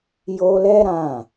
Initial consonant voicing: voiced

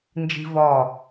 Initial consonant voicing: voiced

